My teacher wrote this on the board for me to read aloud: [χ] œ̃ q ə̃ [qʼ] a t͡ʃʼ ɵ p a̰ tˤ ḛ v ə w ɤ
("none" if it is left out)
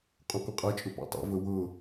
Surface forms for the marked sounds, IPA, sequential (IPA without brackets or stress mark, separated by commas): qʼ, qʼ